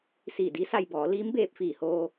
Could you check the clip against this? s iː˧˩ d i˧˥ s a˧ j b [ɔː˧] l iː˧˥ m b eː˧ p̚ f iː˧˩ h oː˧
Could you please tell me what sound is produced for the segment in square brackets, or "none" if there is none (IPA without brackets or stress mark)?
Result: ɔː˩˧